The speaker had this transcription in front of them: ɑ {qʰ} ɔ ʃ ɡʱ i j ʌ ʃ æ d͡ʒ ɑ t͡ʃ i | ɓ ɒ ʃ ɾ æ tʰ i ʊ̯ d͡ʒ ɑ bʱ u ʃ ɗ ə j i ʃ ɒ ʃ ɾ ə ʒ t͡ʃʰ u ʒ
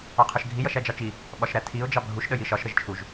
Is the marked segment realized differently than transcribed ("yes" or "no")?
no